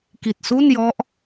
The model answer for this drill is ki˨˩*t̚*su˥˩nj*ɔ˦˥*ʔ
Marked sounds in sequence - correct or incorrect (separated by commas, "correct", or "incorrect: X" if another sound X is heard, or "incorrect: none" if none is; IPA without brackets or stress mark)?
correct, correct